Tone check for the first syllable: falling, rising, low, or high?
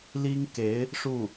high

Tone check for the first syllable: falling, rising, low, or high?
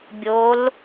rising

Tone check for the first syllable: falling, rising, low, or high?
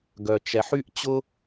low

